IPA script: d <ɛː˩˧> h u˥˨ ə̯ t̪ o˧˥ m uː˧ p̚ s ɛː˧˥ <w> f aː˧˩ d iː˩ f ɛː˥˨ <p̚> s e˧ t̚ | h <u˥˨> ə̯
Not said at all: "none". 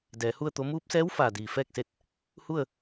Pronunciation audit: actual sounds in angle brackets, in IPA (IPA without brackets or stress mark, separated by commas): ɛː˩˧, w, k̚, u˥˨